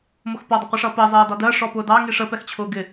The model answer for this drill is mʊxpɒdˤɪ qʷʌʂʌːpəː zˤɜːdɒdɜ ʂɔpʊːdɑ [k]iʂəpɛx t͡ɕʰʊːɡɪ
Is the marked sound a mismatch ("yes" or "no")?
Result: yes